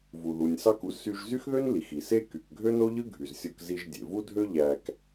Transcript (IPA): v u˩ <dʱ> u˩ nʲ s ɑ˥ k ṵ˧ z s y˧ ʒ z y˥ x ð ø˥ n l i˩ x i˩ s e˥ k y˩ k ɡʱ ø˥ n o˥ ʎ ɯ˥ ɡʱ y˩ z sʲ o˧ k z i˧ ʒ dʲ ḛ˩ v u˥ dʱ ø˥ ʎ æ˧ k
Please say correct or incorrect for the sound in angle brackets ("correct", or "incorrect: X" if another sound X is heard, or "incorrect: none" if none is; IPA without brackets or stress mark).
incorrect: ð